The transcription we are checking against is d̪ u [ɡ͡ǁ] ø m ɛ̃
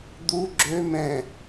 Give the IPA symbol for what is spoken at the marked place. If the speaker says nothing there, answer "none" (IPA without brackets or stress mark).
ɡ͡ǁ